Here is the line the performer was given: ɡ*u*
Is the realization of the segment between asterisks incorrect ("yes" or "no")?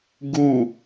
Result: no